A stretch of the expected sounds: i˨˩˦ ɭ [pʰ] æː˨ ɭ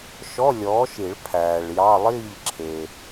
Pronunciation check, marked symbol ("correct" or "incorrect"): correct